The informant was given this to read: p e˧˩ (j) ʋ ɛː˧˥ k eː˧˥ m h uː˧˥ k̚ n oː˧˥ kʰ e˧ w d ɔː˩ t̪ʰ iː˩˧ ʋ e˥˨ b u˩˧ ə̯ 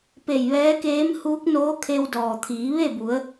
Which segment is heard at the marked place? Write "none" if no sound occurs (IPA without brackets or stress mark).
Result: j